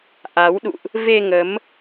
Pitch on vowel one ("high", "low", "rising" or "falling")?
rising